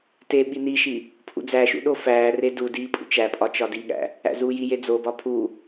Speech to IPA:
t e ɓ i n i ʃ i | pʰ ṵ d͡z æ ʃ ṵ ɗ o f æː r e d u d iː pʼ ṵ t͡ʃ æ pʼ ɒ t͡ʃ ɒ d i ɠ æ̰ | æ̰ z uː j i j e d͡z o b ɒ pʰ u

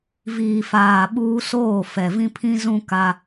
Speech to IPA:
v iː˨ f aː˨ ɓ uː˦ s oː˦˨ f ɛ˨ v ĩ˦ pʰ ĩ˦ z ũ˦ k a˦

